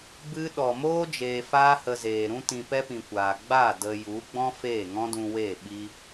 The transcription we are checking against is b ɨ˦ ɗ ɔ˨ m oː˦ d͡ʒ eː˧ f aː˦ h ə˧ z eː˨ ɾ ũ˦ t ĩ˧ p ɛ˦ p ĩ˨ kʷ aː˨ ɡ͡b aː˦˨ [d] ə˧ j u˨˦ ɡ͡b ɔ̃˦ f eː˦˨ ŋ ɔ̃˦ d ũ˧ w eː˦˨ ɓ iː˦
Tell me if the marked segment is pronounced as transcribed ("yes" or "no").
yes